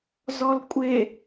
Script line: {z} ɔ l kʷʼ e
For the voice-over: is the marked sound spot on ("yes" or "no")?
yes